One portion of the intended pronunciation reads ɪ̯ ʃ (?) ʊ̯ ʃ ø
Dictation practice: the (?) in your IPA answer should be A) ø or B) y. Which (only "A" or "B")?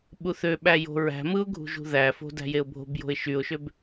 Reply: B